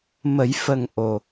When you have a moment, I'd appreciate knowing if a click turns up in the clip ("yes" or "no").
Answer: no